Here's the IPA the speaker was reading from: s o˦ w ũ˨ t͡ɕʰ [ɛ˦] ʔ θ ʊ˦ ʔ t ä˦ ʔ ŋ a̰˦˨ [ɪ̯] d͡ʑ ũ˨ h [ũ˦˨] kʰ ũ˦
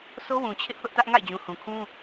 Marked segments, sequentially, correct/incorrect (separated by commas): incorrect, correct, incorrect